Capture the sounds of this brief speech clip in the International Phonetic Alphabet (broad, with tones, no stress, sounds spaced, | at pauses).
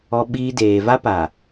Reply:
ɔ˦ ɓ iː˦ d eː˨ v a˦ p a˨